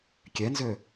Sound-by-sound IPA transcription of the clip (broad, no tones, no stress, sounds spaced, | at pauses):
kʲ ɛ n z ø